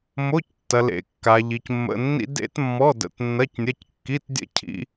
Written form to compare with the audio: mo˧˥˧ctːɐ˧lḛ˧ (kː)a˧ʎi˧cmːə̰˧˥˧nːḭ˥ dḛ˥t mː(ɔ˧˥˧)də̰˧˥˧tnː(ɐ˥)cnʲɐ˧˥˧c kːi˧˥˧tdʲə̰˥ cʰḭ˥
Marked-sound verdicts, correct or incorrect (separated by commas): correct, correct, incorrect